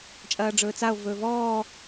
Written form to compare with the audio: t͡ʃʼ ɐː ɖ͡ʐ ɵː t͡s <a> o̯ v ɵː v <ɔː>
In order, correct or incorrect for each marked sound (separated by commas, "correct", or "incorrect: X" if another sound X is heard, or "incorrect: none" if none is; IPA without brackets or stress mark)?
correct, correct